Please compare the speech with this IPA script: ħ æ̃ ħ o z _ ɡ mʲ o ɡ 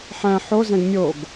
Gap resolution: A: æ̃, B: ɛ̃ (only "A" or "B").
B